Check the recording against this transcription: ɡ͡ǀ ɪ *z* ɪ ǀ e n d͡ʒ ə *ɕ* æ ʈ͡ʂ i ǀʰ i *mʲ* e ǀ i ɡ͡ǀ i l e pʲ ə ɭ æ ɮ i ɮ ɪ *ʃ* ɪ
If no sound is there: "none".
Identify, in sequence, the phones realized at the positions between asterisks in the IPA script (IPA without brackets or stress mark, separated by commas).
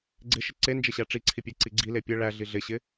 ʃ, ɕ, pʲ, ɕ